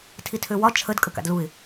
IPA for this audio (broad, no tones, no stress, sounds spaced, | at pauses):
tʰ i tʰ ø w ɒ t͡ʃʰ ə d kʼ ə k a̰ d l u ɪ̯